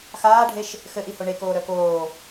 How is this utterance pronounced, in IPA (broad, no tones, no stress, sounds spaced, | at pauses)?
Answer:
x aː ɖʱ e ʃ | x ɘ ʔ i h o ɳ e k oː ɾ œ k oː